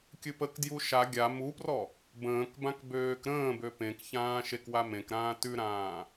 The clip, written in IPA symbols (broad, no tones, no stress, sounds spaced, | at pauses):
kʲ ɨ p ə k d j u ʃ a ɡʲ a m u p r ɔ | b ə̃ː k b ã k b øː k ɾ ə̃ː b ø p ẽ k ç ãː ʃ e k w a m ẽ k ɾ ãː t ʉ ɾ ãː